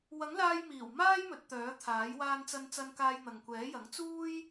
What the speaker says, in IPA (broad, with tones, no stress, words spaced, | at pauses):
wɐ˨˥ŋlaː˧jmiː˨˩w maː˥jmɵ˨˥t̚t̪œː˨˥t̪ʰaː˨˥j waː˧nt͡sɐ˧nt͡sɐ˧n kaː˧jn̪ɐ˨ŋkʷɛː˨˥jɐ˨˥ŋ t͡suː˥j